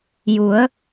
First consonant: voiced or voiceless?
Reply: voiced